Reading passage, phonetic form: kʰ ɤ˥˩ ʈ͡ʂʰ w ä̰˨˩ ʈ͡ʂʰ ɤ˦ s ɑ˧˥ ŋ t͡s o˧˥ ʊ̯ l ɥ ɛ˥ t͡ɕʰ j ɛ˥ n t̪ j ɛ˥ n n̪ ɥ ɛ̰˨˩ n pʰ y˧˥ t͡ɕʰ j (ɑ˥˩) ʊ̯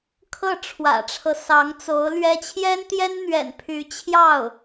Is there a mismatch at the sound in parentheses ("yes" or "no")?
no